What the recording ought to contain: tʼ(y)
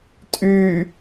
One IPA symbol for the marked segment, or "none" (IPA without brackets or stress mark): y